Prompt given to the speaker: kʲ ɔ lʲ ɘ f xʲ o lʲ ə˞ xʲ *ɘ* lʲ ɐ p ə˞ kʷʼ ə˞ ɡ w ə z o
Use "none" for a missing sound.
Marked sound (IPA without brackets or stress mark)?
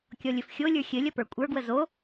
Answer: ɘ